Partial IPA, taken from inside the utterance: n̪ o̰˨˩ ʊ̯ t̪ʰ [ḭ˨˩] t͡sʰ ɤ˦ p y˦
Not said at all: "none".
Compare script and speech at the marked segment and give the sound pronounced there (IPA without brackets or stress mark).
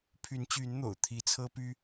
i˨˦